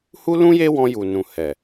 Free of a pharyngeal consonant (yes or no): yes